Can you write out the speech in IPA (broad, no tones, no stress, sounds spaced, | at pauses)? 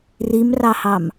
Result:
r i m r ɑ h ɑ m